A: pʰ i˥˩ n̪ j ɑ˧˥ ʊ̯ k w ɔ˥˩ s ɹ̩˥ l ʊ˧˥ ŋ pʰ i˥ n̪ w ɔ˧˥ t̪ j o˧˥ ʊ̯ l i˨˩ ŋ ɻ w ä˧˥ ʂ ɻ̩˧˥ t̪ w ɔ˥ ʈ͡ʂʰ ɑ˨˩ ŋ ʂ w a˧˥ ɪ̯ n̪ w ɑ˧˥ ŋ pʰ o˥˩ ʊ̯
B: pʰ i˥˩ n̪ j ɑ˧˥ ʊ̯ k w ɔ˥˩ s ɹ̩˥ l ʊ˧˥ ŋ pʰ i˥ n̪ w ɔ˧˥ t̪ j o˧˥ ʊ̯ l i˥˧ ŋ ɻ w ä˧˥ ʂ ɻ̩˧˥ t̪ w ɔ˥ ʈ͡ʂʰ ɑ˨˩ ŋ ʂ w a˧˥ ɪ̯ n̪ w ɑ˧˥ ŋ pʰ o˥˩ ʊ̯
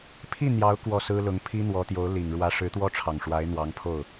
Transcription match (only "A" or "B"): A